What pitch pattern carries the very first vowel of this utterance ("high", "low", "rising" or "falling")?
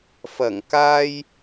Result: low